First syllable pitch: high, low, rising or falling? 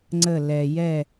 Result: falling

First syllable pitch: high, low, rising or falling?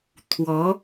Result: rising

